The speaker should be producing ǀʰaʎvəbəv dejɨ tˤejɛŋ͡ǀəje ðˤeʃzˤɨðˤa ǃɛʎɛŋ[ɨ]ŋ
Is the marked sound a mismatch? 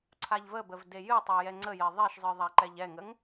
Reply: yes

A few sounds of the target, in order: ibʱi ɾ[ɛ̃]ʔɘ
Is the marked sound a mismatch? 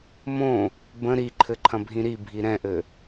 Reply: no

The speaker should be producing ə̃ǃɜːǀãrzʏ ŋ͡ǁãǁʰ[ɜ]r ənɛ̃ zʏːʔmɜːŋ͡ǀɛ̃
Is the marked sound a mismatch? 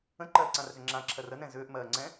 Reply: no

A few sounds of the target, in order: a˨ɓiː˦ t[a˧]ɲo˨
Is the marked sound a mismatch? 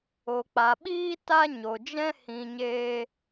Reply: yes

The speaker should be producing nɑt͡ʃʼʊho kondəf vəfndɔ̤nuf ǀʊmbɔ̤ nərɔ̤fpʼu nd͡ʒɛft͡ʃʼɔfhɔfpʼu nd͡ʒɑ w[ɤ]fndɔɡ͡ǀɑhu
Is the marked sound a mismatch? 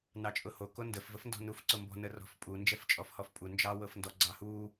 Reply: no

